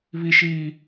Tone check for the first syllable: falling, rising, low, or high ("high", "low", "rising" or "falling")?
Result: high